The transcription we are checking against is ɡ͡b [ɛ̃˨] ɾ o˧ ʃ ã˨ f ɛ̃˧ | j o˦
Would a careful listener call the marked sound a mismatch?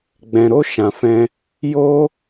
no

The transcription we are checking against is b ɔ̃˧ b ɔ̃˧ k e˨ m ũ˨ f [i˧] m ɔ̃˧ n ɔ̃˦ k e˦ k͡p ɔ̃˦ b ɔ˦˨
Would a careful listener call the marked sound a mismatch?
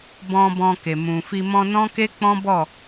no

